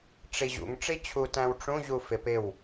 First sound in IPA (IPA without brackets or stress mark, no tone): ʈ͡ʂ